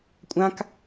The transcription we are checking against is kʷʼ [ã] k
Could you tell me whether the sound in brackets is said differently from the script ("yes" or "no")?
no